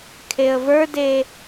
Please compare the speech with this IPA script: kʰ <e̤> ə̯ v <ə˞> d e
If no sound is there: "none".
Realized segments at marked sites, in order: e, ə˞

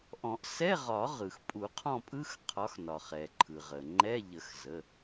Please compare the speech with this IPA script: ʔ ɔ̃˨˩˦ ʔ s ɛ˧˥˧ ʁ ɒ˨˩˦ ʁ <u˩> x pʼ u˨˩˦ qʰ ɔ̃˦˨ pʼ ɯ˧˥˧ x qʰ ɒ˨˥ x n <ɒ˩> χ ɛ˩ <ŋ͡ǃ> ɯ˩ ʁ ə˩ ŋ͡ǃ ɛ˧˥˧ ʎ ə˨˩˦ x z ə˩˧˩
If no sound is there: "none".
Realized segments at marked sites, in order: ɯ˩, ɒ˩, ǃʰ

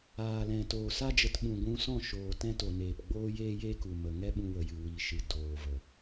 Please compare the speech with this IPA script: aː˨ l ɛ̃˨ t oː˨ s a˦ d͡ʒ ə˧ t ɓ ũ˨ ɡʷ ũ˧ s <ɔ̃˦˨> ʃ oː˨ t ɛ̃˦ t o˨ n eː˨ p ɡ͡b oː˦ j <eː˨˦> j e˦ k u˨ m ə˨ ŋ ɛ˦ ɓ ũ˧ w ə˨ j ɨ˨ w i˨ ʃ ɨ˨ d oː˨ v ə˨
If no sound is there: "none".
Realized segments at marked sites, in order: ɔ̃˦˨, eː˦

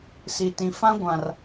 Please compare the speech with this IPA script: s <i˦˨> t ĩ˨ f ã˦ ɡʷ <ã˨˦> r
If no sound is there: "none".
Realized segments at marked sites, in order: i˨, ã˨

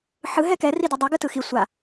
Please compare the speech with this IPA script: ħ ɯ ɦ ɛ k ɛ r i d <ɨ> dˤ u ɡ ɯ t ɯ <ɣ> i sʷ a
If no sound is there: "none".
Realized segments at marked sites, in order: i, x

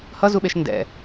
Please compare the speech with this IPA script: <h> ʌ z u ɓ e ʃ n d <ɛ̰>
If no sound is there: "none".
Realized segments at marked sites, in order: h, ɛ̰

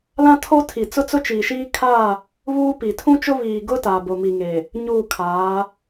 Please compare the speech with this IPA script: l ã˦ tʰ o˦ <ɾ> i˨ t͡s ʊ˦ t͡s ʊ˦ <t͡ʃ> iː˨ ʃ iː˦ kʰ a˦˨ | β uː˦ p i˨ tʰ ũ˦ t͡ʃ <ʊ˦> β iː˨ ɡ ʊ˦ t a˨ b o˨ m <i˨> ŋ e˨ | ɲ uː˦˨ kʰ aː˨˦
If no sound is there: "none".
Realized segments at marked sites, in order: tʰ, t͡ʃ, ʊ˦, i˨

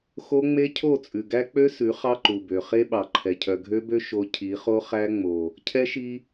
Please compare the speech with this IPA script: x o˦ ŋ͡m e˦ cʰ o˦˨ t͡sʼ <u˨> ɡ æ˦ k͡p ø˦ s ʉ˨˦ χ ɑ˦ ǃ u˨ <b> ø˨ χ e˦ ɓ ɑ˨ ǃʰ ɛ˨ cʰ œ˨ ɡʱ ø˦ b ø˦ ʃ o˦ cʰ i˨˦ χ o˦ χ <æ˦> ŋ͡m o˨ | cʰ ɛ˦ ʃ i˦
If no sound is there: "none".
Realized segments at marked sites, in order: ʉ˨, b, æ˦

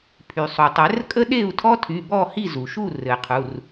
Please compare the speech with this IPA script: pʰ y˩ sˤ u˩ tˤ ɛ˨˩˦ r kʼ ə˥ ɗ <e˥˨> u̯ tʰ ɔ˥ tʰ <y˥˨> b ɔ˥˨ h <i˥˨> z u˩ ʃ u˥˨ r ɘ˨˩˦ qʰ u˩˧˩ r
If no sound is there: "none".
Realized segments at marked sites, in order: e˥˨, y˩˧˩, i˥˨

